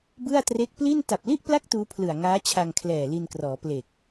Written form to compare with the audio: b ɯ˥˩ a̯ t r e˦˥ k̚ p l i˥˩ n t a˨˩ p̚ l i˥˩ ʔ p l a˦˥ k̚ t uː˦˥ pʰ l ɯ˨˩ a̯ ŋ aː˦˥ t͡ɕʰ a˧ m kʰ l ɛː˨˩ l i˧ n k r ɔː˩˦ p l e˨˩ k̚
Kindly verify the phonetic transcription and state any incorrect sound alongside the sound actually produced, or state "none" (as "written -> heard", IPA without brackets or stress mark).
m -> ŋ